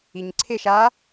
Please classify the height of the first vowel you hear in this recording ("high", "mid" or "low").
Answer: high